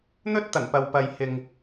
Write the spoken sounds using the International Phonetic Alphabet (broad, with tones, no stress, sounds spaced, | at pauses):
n̪ ɵ˥ t̚ t̪ ɐ˨˩ n p ɐ˨ w p ɐ˨ j h ɪ˨ ŋ